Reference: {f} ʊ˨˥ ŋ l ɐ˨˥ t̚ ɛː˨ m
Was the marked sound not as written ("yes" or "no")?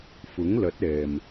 no